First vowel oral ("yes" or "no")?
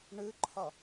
yes